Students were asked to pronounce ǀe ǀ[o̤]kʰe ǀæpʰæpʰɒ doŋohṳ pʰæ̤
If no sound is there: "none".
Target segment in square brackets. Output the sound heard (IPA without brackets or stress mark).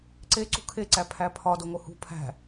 ṳ